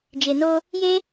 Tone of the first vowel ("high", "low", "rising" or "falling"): low